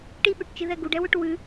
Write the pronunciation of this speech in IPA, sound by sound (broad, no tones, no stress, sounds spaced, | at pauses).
ʈ i ɓ ʉ ʈ t͡ʃ ɨ ð ɛ ɡ u ɖ ɛ w ʏ ʈ w ʉ